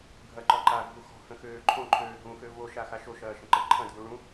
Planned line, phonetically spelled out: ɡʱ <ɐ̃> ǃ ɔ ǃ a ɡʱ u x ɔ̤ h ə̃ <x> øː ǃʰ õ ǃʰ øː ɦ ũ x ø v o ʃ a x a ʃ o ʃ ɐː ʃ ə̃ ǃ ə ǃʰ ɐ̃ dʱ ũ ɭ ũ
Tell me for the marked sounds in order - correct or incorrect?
incorrect: ɐ, correct

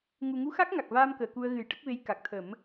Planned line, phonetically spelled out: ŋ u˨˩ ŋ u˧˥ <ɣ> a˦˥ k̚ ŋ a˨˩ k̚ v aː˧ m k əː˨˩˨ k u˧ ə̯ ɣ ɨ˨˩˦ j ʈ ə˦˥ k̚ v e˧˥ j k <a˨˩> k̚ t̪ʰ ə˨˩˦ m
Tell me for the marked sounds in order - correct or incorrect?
incorrect: x, correct

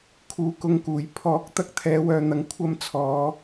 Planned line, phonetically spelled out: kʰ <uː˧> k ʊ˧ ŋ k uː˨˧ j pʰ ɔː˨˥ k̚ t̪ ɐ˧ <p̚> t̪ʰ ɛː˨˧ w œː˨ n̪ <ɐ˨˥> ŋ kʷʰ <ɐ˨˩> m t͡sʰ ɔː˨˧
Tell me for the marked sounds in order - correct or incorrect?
incorrect: uː˨, incorrect: k̚, incorrect: ɐ˨, incorrect: ɐ˧

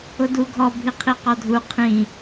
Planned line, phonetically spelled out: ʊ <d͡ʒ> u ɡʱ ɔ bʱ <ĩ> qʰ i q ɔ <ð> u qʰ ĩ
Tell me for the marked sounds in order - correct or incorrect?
incorrect: d, incorrect: i, incorrect: dʱ

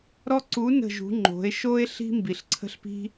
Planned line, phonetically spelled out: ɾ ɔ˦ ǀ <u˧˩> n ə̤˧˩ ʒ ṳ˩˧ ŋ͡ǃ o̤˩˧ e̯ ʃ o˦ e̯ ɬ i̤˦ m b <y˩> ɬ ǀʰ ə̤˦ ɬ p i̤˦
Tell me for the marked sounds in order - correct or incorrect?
incorrect: u˨˥, incorrect: i˩

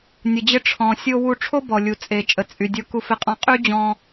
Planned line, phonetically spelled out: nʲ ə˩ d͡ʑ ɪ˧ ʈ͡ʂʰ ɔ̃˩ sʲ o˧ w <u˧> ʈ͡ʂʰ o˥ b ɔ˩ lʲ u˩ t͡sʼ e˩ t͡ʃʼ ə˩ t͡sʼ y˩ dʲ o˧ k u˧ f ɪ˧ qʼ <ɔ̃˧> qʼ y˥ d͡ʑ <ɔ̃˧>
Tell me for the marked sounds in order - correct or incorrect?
correct, correct, correct

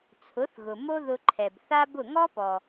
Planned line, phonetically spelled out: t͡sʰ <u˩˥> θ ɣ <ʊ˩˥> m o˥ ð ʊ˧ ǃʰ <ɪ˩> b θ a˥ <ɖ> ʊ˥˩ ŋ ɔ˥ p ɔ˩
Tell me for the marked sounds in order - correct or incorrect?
incorrect: ʊ˩˥, incorrect: ʊ˩, incorrect: ɛ˩, incorrect: b

